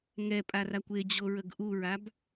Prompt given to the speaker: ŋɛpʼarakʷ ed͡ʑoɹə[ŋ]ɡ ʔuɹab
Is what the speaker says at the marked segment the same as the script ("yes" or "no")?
no